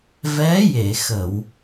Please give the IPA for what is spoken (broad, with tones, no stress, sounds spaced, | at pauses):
v ɛ˧˥ j e˨˩˨ x ə˨˩˨ w